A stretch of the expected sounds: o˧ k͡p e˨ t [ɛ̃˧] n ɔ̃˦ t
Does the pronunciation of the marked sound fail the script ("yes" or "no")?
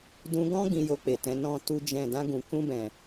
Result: yes